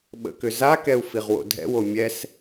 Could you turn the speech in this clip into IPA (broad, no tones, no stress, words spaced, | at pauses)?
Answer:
ɓə̰kʏzakɛu̯ fiʁwo̰dʱɛ̰wo mʲɛs